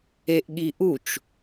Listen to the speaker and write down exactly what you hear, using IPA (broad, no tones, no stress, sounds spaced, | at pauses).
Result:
e ʔ ɠ i ʔ u t͡ʃ